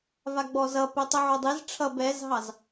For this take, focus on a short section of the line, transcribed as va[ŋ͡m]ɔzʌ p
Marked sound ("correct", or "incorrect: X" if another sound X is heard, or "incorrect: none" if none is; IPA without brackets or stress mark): incorrect: ɡ͡b